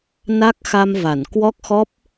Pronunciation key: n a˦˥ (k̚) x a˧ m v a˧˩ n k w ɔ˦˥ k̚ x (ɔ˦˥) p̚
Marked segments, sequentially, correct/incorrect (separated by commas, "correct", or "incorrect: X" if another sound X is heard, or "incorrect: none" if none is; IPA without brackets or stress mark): correct, correct